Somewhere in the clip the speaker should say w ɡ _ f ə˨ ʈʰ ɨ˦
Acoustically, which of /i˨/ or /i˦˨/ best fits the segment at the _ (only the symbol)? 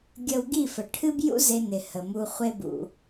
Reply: i˦˨